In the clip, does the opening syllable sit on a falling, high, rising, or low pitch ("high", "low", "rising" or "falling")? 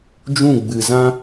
falling